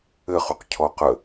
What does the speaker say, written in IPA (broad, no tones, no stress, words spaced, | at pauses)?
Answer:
ɘχuqcʰɔ qə